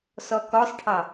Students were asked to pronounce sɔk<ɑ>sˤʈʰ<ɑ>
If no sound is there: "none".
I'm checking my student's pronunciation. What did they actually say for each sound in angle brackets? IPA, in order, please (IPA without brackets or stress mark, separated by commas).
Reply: ɔ, ɑ